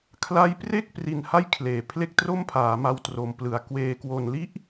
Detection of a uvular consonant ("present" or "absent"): absent